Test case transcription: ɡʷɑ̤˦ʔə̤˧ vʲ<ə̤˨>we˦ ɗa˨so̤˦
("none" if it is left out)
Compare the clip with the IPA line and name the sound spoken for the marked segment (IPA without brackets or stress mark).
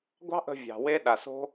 ɑ̤˨